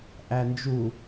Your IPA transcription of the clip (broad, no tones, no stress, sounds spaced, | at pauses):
ʔ æ n d͡ʒ u